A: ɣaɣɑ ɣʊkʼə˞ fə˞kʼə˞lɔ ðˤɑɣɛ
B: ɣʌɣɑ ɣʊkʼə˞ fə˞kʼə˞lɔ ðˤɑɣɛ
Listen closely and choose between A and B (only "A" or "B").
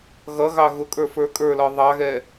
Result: B